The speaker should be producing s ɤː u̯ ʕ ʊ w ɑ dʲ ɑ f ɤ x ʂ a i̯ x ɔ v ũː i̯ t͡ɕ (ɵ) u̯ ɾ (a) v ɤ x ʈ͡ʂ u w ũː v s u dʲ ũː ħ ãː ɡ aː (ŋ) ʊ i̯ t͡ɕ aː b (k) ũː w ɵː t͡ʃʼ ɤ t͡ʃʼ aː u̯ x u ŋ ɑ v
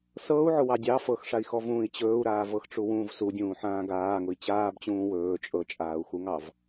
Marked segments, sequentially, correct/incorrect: incorrect, incorrect, correct, incorrect

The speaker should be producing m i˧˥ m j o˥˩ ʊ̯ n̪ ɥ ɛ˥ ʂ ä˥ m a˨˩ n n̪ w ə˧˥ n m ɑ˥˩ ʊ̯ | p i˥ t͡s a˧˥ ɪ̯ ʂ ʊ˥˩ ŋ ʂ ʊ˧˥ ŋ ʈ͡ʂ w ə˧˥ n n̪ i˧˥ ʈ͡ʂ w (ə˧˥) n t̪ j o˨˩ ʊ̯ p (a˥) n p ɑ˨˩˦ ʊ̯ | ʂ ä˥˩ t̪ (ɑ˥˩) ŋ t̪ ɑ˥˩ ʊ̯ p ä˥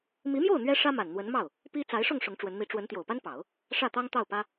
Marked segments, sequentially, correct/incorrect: correct, correct, incorrect

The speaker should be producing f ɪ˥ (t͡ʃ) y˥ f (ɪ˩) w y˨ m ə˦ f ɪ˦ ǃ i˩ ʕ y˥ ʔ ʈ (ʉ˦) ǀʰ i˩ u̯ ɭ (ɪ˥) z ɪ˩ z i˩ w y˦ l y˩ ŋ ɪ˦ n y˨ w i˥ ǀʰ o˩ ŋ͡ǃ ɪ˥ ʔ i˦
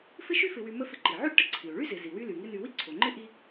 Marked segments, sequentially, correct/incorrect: incorrect, incorrect, incorrect, incorrect

